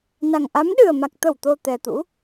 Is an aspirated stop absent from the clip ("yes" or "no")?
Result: yes